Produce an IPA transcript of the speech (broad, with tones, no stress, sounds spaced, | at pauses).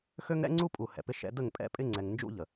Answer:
x ø˦ ŋ ɾ ɛ̰˦ ŋ͡ǀ u˦ pʼ u˨ h ɛ̰˨ p ɪ˦ ʃ ɛ̰˦ d ə˦˨ ŋ pʼ ɛ̰˦ pʼ ɪ˦ ŋ͡ǀ ɛ˨ ŋ n d͡ʒ ṵ˦ ʎ ə˨